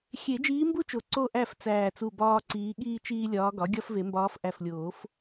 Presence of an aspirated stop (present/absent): absent